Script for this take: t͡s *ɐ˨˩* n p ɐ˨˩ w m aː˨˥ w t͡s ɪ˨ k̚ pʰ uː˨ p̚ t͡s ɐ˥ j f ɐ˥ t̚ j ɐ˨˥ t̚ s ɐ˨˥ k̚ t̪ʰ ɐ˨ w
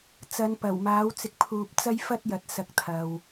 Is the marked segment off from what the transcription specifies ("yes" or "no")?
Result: yes